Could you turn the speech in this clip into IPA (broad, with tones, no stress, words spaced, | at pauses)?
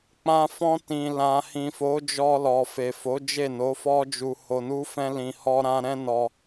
k͡pã˦ fɔ̃˧ tĩ˨ lã˨hĩ˨fo˨˦d͡ʒɔ˧ lɔ˨fe˨fo˨˦ d͡ʒe˦˨no˨˦fɔ˦d͡ʒu˧ ho˧nu˦fɛ̃˦lĩ˧ hɔ˦ɾã˦ ɾɛ̃˦nɔ˧